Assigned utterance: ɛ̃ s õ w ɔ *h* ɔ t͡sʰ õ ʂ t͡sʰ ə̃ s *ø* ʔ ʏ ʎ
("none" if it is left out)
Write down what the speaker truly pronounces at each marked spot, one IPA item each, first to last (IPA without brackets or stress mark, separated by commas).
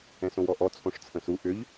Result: ʔ, u